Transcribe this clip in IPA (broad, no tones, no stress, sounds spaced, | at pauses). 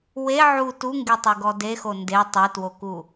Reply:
w e ʕ u t u ŋ ɡ e tˤ e ɡ ɔ d e x o n d e tˤ e t w o k u